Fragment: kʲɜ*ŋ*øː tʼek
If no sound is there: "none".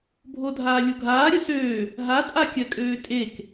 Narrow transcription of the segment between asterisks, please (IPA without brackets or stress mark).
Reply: kʼ